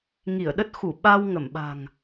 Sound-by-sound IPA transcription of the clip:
ŋ i˧˩ ə̯ ɗ ə˦˥ t̚ x u˧˩ ɓ a˧ w ŋ ə˧˩ m ɓ a̤˨˩ ŋ

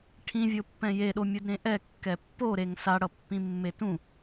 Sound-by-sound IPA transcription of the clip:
ʈʰ ĩ vʲ o pː ɛ̃ j e ɗ o mʲ u d ɾ ẽ ʔ ɛ kː ɛ pː o ɾ e ŋ s a ɽ ʌ pː ĩ mː e t ũ

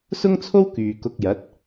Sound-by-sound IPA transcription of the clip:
s ʊ˥ ŋ t͡sʰ o˥ w k yː˨ k ʊ˧ k̚ j ɐ˨˥ t̚

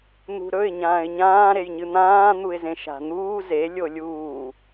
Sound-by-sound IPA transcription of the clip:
n̪ ṳ ɾ ɵ ɪ̯ ɲ ãː ɪ̯ ɲ ãː ɾ e j ɲ ɨ n̪ ãː n̪ u ɪ̯ z ẽ ʃ a̤ n̪ uː z e lʲ o lʲ uː

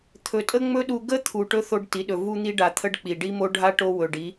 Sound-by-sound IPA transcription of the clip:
t̪ʰ ɵ˨ tʼ ə˦ ŋ͡m ɵ˦ ɗ u˧ ɡ ə˦ t̪ʰ u˨ ʈ ɵ˦ θ o˧ ɖ t i˨˦ ɗ ɵ˨ v u˧ n̪ i˧ ɖ a˨ t̪ʰ ə˦ ɖ k͡p i˨ ɖ i˦ m o˦ ɖʱ a˦ ʈ o˧ w ɵ˨ ɖ i˨˦

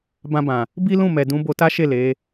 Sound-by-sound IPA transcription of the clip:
b ã˧ b ã˨ | b i˦ l ũ˦˨ m ɛ˨ d ũ˨˦ b o˧ t a˦ ʃ e˦˨ l e˨˦

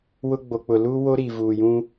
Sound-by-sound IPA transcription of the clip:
w ʊ˦ ɡ͡b o˨ k͡p ʊ˨ l uː˦ w o˦ ɾ i˨ v uː˨ j ũ˦

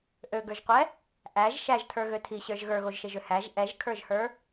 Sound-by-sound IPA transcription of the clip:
ʔ ø ɡ ə˞ ʒ qʷ ɛ | ʔ æ ʒ ʃ æ ʒ tʰ ə˞ ɣ ø tʰ i ɕ ə˞ ʒ ɣ ə˞ ɣ o ʒ ʃ e ʒ ø h æ ʒ ʔ ɛ ʒ kʰ ə˞ ʒ h ə˞

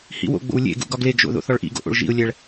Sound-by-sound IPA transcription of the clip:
h ḭ w o̰ ɡ͡b o̰ w lʲ ḛ ɡ ṵ ɡ ɒ ɡ l e ɡ ʒ o̰ ð o̰ θ ɒ ɭ ʔ ḭ ɡ o̰ ʔ o̰ ɭ ʒ ḭ ʊ̯ lʲ æ ɭ

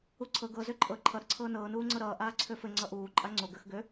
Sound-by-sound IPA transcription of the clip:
u ǀʰ ɤ ɡ ɤ z ø ǃʼ ɤ ǃʰ ʌ ɾ ə ǀʰ ɤː n ɤː n uː ŋ͡ǀ ɤ ɾ ʌː ʔ aː ǀʰ ø f ɘ ŋ͡ǀ ʌ ʔ uː ǃʼ a ŋ͡ǀ o ɡ ə x ɡ ø

